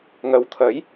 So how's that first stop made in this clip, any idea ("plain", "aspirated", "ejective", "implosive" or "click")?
aspirated